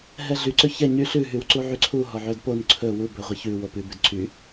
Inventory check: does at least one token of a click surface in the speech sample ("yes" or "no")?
yes